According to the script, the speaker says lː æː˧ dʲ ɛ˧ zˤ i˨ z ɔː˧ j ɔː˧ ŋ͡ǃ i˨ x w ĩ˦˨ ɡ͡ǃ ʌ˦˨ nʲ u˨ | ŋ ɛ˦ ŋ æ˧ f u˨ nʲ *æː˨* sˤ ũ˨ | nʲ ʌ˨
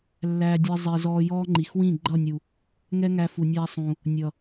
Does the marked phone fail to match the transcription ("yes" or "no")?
yes